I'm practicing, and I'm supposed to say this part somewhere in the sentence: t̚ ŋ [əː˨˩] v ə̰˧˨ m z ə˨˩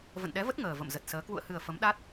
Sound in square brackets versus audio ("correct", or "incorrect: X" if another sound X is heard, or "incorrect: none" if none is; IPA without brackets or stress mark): correct